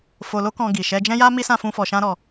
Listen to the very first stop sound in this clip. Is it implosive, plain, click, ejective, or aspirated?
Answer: plain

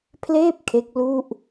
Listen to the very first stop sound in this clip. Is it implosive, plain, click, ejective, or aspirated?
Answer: aspirated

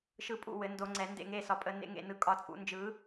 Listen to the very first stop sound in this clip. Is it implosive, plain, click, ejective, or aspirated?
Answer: ejective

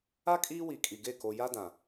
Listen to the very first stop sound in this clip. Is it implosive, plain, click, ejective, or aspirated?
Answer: ejective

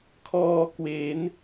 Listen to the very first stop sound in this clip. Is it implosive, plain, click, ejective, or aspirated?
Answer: aspirated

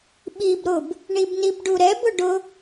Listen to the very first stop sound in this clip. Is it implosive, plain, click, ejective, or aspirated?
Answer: implosive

